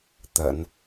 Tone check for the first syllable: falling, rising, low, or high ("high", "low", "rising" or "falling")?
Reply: low